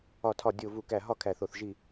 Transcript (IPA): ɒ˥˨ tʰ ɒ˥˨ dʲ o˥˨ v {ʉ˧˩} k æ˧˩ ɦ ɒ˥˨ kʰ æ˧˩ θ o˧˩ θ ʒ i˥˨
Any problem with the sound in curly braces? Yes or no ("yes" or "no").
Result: yes